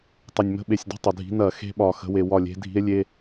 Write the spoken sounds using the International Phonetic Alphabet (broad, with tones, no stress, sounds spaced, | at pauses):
tˤ ɐ˨˩ nʲ m ə̤˧˥˧ ɓ e˨˩ sʲ d e̤˥˩ tˤ ə˨˩ dʱ i̤˨˦ n ɐ˧˩˧ x e̤˦˥ ɓ ɒ˨˩ x ə̤˨˦ w e˨˩ w ɒ˥˩ lʲ e̤˦˥ dʱ i̤˦˥ e̯ lʲ e˧˥˧